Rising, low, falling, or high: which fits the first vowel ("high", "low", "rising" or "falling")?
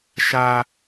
high